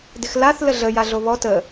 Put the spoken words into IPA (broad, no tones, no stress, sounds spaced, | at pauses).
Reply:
d ɪ x l a θ l ə ɮ ə j a ɮ o β ɔ t ə